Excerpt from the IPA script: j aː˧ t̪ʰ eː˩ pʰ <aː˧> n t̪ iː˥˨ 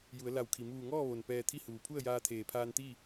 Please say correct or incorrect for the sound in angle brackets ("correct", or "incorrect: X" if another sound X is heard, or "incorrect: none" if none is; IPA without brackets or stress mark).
correct